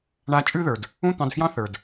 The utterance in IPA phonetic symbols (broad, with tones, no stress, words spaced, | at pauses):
ɳa˨˦t͡ʃʼʉ˦˨ðə˞˩d | ũ˦˨t̪ɑ̃˩˧˩dfjɑ̃˦˨ θə˞˩d